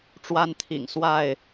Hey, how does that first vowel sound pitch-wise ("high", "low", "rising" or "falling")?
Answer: high